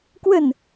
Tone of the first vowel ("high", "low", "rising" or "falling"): falling